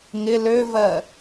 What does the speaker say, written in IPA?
ŋ ɪ l ø v ɜ

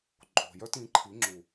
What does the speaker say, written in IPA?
ǃʼ o̤˨ j œ˦ t ĩ˨˦ ǃʰ i˨˦ ŋ͡ǁ u˨

